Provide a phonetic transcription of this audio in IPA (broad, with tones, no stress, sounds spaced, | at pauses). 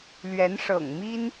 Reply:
l ɥ ɛ˧˥ n ʂ ɤ̰˨˩ ŋ m i˥ n